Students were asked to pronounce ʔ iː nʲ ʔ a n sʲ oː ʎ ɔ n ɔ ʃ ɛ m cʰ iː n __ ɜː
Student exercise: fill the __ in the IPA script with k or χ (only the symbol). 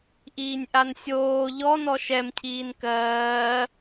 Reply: k